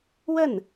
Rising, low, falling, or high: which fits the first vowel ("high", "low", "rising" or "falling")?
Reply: falling